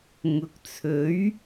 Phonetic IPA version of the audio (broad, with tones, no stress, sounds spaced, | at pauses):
ŋ ʊ˨˥ k̚ t͡sʰ ɵ˨˥ ɥ